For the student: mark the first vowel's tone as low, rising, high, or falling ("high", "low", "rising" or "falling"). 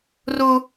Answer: low